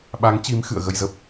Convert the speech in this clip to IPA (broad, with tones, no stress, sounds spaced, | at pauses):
ɓ a˨˦ ŋ t͡ɕ i˨˦ m x ɨ̰˧˨ ə̯ ɣ ə˧ j z ə˦˥ p̚